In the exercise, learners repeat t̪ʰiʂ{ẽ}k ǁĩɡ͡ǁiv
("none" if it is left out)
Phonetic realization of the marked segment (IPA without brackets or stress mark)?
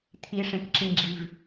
ẽ